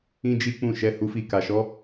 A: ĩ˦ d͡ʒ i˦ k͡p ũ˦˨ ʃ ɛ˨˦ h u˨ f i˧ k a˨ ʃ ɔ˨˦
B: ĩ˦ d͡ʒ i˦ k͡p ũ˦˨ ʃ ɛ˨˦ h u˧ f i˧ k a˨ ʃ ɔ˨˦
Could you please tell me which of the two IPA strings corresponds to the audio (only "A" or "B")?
B